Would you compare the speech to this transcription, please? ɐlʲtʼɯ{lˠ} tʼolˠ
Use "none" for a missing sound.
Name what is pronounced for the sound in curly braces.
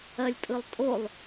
lˠ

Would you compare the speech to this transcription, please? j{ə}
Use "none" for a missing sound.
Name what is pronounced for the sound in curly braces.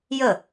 ə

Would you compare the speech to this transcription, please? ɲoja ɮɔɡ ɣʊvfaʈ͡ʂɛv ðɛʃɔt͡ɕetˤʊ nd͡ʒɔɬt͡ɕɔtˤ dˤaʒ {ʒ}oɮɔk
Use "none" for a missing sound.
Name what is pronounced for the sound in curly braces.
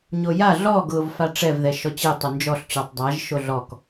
ʃ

